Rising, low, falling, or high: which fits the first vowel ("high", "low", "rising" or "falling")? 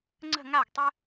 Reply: falling